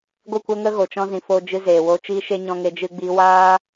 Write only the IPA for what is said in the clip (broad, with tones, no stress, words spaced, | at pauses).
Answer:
ɡʷɨ˦˨kʷə˦ŋə˦ ɣo˧t͡ʃɔ̃˦zĩ˧ fo˧d͡ʒɨ˧zeː˨ wo˧ t͡ʃiː˦ʃe˦ ɲɔ̃˧ŋe˧d͡ʒɨ˧ ɡ͡biː˧waː˦